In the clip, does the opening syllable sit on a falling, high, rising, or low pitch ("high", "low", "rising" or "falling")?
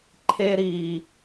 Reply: high